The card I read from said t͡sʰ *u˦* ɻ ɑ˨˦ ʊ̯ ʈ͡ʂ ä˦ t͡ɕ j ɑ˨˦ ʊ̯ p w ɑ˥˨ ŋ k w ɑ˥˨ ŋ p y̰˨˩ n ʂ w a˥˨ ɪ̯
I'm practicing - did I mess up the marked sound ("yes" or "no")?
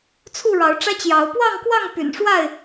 yes